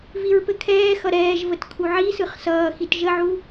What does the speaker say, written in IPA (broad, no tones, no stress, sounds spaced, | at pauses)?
v i ɹ p ɘ kʰ ɛː x ʌ ɾ ɛː ʒ v ə t kʰ u ʕ i s ɯ χ s ʌː x i t ʒ ə ʕ u